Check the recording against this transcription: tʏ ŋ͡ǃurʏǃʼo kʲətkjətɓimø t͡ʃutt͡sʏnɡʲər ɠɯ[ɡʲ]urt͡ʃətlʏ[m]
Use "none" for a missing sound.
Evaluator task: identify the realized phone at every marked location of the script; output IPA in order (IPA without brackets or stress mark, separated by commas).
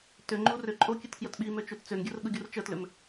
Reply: ɡʲ, m